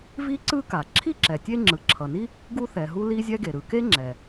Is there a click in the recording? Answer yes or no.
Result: yes